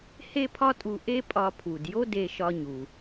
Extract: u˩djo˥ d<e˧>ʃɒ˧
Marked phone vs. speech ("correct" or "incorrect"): correct